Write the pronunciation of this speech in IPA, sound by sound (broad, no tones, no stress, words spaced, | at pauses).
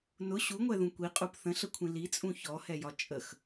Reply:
nʊ ɕuŋʷɛðũ kʷiqʼup θə̃ɬəkʷʰĩ lit͡sʼũ çɔhɛjɒ t͡ʃʼəx